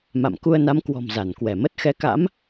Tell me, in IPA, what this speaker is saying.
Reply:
m a̰˧˨ m k u˧ ə̯ n a˨˦ m k w ɔ̤˨˩ m z a˧˩ n k w ɛ˧˩ m ə˦˥ t̚ x ɛ˨˦ k a̰˧˥ m

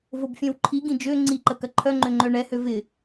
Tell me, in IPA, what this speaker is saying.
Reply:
v o b fʲ ɛ̃ w ǃʰ i ɡ ĩ d͡ʒ ø ŋ͡ǀ i ǃ ə k ɐ ǃʰ œ ŋ͡ǃ ø ŋ͡ǃ œ ɳ ɛ h ø v ɪ

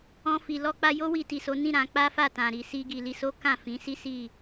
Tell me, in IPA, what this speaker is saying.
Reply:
ɔ̃˧ f i˨ l ɔ˧ k͡p a˧ j o˦ w i˧ t i˨ s o˨˦ n ĩ˦˨ ɾ ã˧ k͡p a˦ f a˦˨ t ã˨ ɾ i˨ s i˧ ɡ i˨ l i˧ s o˦ k ã˦˨ f ĩ˨˦ s i˦ s i˦˨

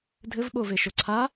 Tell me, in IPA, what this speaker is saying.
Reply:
dʱ ɘ v ɓ o v e ʃ o ǀʰ a

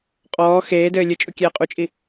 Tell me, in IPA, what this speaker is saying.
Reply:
qʼ ɔː x eː d ɘː lʲ ɨ t͡ʃʼ u kʲ ɛː qʼ u t͡ʃʼ i

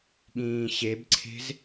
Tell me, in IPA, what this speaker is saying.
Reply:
ɠ ĩː ɕ e b ǀʰ e̤ z

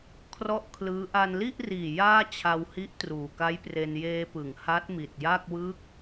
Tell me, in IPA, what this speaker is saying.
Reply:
kʰ r ɔ˥˩ ʔ kʰ l ɯː˦˥ ʔ a˧ n l i˥˩ ʔ r iː˨˩ j aː˥˩ t͡ɕʰ a˧ w h i˦˥ ʔ t r uː˨˩ k a˦˥ j p r e˧ n j eː˧ p ɯ˩˦ ŋ h a˦˥ t̚ m i˨˩ t̚ j a˥˩ k̚ w ɯ˦˥ k̚

